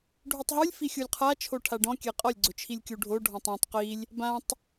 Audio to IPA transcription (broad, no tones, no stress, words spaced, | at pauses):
ɖʱutˤɦulʲ fixʲulʲqʰa t͡ʃʰoʈʰaɖɔ̃ kʲɛqʼɔlʲ ɡ͡ǀʊt͡ʃʰilʲkʲuɖʱo ɖʱɔ̃tˤɔ̃tˤ qilʲ | bãtˤ